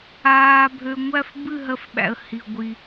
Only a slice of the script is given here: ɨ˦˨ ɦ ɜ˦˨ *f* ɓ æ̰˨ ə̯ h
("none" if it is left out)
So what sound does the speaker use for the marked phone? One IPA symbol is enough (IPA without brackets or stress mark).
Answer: f